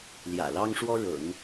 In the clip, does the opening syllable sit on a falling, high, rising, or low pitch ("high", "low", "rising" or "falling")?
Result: low